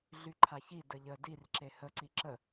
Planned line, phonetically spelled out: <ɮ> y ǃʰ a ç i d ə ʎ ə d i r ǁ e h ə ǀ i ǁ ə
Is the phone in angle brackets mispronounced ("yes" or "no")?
no